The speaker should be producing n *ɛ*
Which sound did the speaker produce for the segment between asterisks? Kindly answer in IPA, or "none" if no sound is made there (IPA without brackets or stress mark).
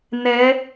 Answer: ɛ